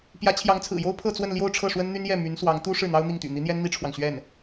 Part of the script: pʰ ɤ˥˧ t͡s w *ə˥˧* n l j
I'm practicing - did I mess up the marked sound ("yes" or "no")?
no